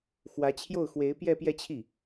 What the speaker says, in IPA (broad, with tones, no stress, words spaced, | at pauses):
xwä˧˥t͡ɕʰjo˥˩ʊ̯ xwe˧˥ɪ̯ pjɛ˥˧pjɛ˥˧t͡ɕʰi˥˩